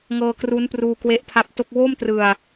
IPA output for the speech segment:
ŋ ɤː˧ k r u˦˥ n p r uː˧ k w e˦˥ ʔ pʰ a˦˥ p̚ t o˥˩ k̚ w oː˥˩ m t r ɯ˧ a̯

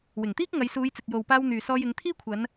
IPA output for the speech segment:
w ɪ˨˩ ŋ t̪ iː˥ k̚ ŋ ɐ˨˧ j s uː˨˧ j t͡s ɪ˨ k̚ j o˨ w p aː˧ w n̪ yː˨ s ɔː˧ j ɪ˨˧ ŋ t̪ʰ iː˥ kʷʰ ɐ˨˧ n

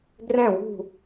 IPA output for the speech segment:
ɡ r ɛ̃˦˨ w ṳ˦˨

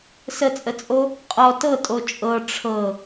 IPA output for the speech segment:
s ə t͡sʼ ə t͡sʼ o | qʼ ɔ t ɤ tʼ o t͡ʃʼ ɤ ʈ͡ʂʰ ɤ

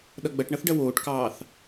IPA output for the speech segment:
ɗ ʌ ɡ͡b ɐ ʈ ɳ ʌ θ ɖ ɐ w oː ʈ k ɑː θ

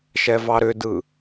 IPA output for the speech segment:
ʃ ɛ v ɑ ɾ ʏ d ɯ

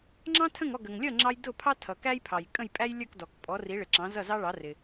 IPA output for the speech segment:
ŋ͡ǁ ɑ̃˥ tʰ ə̃˥˩ ŋ ɔ˥˩ ɡ ə˩ ŋ lʲ ʌ˥˩ ŋ͡ǁ ɑ˧ j d ʊ˥˩ pʰ ɑ˥ tʰ ʌ˩ k æ˥ j pʰ ɑ˩ j kʼ ə̃˥˩ j pʼ æ˥ j lʲ ə˞˥˩ k d ɔ˩ k pʼ ɔ˩˥ r i˩˥ ɭ ɪ˩ ǁ ɑ̃˩˥ z ʌ˥˩ z ɑ˥ ɭ ɑ˩˥ r ɪ˩

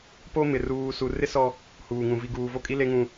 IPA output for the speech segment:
p o˦ m ɪ˨ r uː˨ s u˨ r ɪ˦ s ɔ˦ | h uː˨ ŋ ũ˨ v i˨ ɡ uː˨ v o˦˨ kʼ i˦ l e˦ ŋ ũ˦

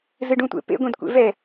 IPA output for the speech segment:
z ɨ ɖ ũ tʷ ḛ p ḛ ɡʷ ẽ d kʷ ḛ v ɛ

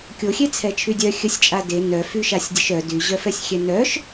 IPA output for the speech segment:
kʲ o xʲ e t͡sʰ ɛ t͡ʃʰ y dʲ œ xʲ ə sʲ t͡ʃʼ a d e n œ f y ʃ a sʲ dʲ ə ʃ œ d y ʑ œ f ɛ sʲ xʲ ɛ n œ ʃ

